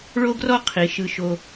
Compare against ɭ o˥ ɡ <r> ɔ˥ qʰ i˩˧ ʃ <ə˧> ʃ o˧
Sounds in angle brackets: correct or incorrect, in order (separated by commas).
correct, incorrect